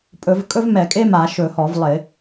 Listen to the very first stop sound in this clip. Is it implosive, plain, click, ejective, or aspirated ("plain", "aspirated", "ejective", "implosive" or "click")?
ejective